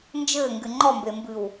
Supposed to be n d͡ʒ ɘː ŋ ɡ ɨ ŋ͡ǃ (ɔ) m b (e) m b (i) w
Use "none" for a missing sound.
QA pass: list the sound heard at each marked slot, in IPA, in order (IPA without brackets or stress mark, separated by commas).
ɔ, e, ɨ